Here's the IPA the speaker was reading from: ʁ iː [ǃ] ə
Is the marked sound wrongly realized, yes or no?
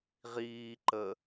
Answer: no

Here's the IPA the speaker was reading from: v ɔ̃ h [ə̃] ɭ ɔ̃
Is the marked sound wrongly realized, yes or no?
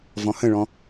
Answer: no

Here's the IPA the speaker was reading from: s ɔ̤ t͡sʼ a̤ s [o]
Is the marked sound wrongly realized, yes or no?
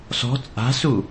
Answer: yes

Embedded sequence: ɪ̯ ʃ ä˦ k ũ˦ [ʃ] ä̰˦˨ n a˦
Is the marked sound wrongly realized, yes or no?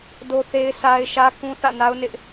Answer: yes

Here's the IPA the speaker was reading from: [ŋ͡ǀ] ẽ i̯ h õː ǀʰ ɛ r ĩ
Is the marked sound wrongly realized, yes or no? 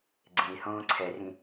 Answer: yes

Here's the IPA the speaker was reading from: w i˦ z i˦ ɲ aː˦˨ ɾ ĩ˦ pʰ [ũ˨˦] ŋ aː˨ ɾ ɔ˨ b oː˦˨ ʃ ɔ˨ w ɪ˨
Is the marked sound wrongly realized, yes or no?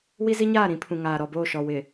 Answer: yes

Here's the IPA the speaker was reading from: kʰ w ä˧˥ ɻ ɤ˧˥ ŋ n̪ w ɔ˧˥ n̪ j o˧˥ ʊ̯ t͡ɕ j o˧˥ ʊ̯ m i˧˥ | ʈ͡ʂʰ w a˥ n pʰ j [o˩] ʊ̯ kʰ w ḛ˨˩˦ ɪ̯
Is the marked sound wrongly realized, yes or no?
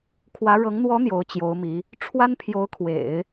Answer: yes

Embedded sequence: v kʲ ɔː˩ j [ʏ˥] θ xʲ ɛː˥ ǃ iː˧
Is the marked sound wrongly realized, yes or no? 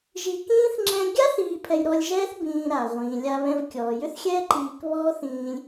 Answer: no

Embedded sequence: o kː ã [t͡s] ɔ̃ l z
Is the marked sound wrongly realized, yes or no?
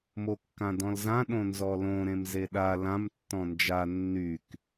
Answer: yes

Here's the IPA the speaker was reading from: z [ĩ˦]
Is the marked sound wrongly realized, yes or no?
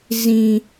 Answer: no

